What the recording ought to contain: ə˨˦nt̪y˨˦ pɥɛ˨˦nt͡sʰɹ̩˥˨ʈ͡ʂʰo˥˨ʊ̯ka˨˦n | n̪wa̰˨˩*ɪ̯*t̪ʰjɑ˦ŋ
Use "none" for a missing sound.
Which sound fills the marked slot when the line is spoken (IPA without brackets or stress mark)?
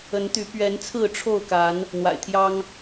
ɪ̯